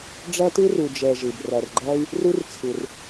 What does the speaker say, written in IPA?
ɖ͡ʐ æ˦ t ɯ˦ r u˨ d͡ʒ ɛ˧ ʒ ɯ˨ b r æ˨ r ɡ͡ǃ æ˦ y̯ | r u˦ r t͡sʰ ɯ˨ r

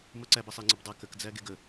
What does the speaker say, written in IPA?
m ʌ ǀ æ b ʌ sˤ e ŋ͡ǀ ə b dˤ ʌ k ə k d͡z æ ɡ e ɡ ə

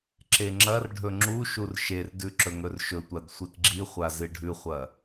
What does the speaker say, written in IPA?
ǁ e ŋ͡ǁ ɐ r ɖʱ ɵ ŋ͡ǁ u ʃ u r ʃ e r d ʉ ǁ ɵ ŋ ɵ r ʃ ɵ tʷ a d sʷ i t ɡ͡ǁ i χʷ a z ɨ ɖʱ ʉ χʷ ɐ

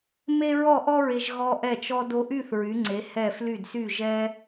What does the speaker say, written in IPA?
m e˥ ɹ ɔ˥˧ ʔ ɔ˥ ɹ e˧ ʒ ɣ ɔ˧ ʔ ɛ˧˩ t͡ʃ ɔ˧ d o˧ ʔ y˥˧ θ ɹ y˩˧ ŋ͡ǀ e˩˧ h ɛ˧˩ f l y˧˩ d s y˧˩ ʒ ɛ˧

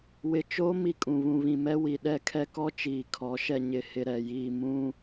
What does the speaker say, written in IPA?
w ɪ˨ t͡ʃ oː˦ m i˦ kʼ ũ˨ β ũ˨ β ĩ˨ m ɛ˦ w i˨ ɗ ɛ˦˨ kʰ ɛ˦ k ɔ˦ t͡ʃ iː˨ kʰ ɔ˨˦ ʃ ɛ˨ ɲ ɪ˨ h ɪ˨ ɾ ɛ˨ j iː˨ m ũ˦

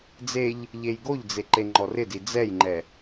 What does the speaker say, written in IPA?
d͡z e ʎ | ʎ e j ɡ o ʎ d͡z e ǃ e ŋ͡ǃ ɔ r ɪ d i d͡z ɛ j ŋ͡ǃ ɛ

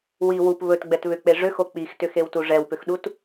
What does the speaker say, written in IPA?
w i w u p β ɵ t ɡ͡b ɛ t β ʏ k͡p e ʐ ʏ x o k͡p i x t ʏ x e w t u ʐ ɛ w p ʏ x ɗ u t

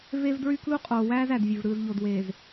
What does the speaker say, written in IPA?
v e˦ v d ɹ y˦ k l u˦ qʼ oː˨ w æː˦ z æ˨ d vʲ ø˨ v ɾ ɯː˨ z ʎ o˨ d w eː˨ z

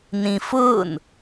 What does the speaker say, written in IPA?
n ĩ f ʊː n

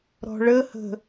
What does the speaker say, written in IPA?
ɾ ɔ̤ ɭ ə h ə̤

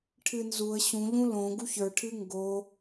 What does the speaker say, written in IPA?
ʈʰ ɨ n z u ə̯ ɕ ũ ʎ ũ l õ ɡ u ç ə˞ ʈʰ ɨ ŋ ɡ o

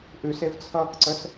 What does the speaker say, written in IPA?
ʔ ʉ s e v t͡sʰ ʌː k ǀ ə s

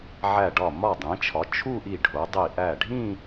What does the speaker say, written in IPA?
ʕ æ˧˩ ɖ ɒ˧˩ m ɒ˧˩ dˤ ĩ˩˧ t͡ʃʰ ɒ˩˧ t͡ʃʰ u˥˧ ʔ i˧˩ ɖʱ o˩˧ dˤ i˧˩ ʔ æ˧˩ ɖʱ ĩ˥˧

